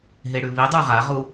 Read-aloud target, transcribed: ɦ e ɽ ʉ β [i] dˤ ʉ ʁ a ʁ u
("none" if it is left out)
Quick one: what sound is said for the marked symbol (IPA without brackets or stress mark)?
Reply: i